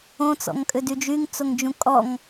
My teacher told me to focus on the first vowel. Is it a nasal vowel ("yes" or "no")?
yes